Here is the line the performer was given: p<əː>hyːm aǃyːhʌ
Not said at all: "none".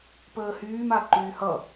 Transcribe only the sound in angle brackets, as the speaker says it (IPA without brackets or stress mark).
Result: əː